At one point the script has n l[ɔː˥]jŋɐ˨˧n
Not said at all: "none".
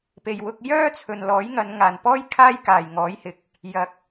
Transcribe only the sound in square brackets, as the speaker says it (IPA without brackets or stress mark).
ɔː˨˥